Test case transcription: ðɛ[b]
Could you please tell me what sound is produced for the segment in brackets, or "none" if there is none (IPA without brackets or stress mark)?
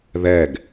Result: ɡ